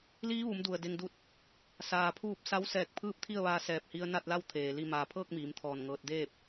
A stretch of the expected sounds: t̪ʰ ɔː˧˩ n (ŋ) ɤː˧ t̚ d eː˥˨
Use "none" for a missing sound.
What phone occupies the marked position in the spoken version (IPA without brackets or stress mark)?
ŋ